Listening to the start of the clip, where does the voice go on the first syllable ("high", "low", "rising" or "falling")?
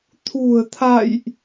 low